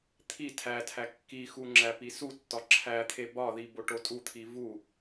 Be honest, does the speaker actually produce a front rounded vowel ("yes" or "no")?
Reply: no